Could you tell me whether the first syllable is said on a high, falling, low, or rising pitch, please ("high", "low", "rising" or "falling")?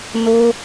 high